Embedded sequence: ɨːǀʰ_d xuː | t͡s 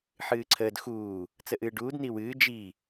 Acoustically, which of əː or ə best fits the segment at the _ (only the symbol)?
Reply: əː